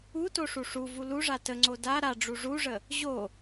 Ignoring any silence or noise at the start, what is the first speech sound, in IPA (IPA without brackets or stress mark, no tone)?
u